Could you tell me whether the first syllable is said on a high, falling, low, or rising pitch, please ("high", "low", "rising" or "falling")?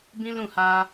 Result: high